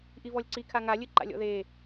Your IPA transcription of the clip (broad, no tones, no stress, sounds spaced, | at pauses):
ʔ i v ɔ lʲ ǀ i kʰ a ŋ a lʲ ɨ ǃ a̰ lʲ ɔ̰ ð e